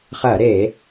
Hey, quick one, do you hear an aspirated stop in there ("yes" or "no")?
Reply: no